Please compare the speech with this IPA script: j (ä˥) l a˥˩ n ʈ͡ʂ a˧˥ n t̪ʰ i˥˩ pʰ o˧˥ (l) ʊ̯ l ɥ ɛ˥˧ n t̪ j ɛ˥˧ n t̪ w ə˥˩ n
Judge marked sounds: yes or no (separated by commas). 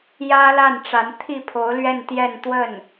yes, no